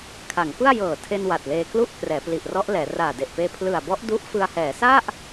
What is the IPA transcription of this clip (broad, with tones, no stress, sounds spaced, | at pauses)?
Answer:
kʰ a˩˦ ŋ p ɯ˥˩ a̯ j ɤː˨˩ tʰ e˧ n w a˨˩ t̚ l eː˧ k l u˥˩ ʔ k r ɛː˩˦ p l i˨˩ ʔ r ɔ˦˥ ʔ l ɛː˩˦ r aː˨˩ d e˨˩ ʔ p eː˧ pʰ l ɯ˨˩ a̯ b ɔ˦˥ ʔ d u˦˥ ʔ f ɯ˧ a̯ h ɛː˩˦ s a˥˩ ʔ